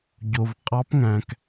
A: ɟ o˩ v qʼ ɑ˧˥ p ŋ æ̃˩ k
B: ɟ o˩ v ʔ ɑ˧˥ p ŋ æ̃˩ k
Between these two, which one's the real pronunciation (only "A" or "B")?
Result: A